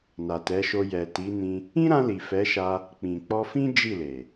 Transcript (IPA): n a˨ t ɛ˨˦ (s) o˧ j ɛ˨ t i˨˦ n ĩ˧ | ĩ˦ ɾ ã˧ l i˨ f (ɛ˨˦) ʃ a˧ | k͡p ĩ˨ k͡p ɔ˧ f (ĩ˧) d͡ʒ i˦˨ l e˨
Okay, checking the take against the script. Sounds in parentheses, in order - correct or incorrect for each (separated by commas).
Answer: incorrect, correct, incorrect